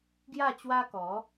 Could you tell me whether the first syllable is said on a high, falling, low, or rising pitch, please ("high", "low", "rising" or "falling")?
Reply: falling